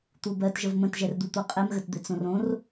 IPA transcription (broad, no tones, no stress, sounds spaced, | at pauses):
t̪ u b ɜ t ʒ ə v m ə̃ t ʒ ɛ r d̪ u t̪ o qʼ ɛ m ɣ ə t d̪ ɪ t͡s õ r õ r